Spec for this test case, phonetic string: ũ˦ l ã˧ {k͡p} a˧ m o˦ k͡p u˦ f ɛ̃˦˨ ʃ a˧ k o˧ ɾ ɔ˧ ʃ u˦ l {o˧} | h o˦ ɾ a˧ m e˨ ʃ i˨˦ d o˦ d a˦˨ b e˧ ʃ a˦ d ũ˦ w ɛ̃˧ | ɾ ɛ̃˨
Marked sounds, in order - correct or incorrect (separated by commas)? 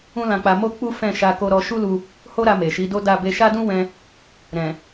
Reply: correct, incorrect